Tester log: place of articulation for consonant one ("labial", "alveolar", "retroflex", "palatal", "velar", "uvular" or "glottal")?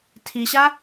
alveolar